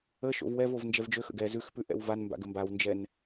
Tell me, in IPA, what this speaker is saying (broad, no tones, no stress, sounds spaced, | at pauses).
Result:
ə ʃ o̰ v w ɛ v o v n d͡ʒ ɛ v d͡ʒ ø x ə̰ ɡ ɛ z ʉ x p ʉ ʔ ɛ̰ w v a n m b a̰ ɡ ə m b a w n d͡ʒ ɛ n